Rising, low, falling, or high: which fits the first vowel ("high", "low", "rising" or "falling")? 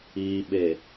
low